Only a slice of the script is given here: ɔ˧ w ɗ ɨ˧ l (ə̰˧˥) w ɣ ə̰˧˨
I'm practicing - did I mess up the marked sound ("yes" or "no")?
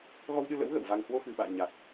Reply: no